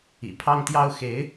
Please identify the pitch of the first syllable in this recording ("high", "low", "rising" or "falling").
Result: low